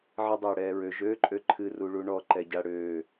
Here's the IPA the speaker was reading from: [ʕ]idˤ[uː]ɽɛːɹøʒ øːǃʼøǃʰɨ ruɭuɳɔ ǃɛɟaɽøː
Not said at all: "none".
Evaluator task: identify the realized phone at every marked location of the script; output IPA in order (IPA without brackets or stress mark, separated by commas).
ʕ, øː